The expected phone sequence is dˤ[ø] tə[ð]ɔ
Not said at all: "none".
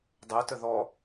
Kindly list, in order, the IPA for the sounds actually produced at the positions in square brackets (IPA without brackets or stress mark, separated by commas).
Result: ɛ, ð